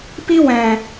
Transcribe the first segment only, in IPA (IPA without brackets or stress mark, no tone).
p